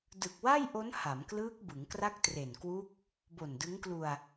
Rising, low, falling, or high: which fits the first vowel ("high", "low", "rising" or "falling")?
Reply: low